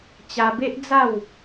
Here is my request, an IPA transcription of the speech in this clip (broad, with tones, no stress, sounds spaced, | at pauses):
t͡ɕ a˧ b e˦ ʔ d͡z a˥˧ w